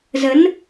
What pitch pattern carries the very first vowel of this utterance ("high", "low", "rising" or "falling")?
rising